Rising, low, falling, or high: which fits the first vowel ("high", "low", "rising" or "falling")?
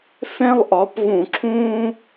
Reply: high